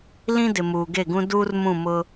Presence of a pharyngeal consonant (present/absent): absent